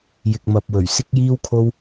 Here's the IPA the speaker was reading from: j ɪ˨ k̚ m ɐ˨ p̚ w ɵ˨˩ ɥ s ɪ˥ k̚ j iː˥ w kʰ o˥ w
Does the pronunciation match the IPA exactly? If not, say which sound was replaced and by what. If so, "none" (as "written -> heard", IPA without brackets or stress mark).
none